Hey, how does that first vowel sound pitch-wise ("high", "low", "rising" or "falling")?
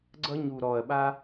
high